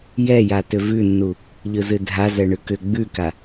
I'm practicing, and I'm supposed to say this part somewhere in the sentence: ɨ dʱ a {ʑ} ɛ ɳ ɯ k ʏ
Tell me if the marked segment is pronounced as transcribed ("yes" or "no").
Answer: no